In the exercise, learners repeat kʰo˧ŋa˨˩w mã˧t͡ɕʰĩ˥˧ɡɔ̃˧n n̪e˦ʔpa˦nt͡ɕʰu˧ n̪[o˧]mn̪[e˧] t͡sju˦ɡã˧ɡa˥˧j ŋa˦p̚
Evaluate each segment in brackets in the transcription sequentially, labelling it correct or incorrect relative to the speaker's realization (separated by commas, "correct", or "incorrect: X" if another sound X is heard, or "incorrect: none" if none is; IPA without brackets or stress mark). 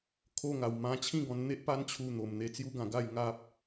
incorrect: o˨˩, correct